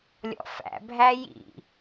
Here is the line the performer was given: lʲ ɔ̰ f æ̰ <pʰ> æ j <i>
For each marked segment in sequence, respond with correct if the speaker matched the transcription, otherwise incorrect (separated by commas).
incorrect, incorrect